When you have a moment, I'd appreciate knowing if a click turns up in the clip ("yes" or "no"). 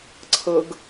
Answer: yes